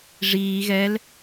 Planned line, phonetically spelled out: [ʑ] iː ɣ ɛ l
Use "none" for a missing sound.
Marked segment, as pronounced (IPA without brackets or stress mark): ʐ